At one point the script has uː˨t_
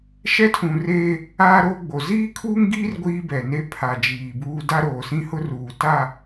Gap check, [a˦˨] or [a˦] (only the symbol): a˦˨